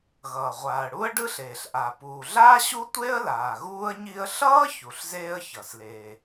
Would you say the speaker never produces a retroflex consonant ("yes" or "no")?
no